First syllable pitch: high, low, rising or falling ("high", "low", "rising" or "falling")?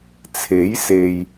rising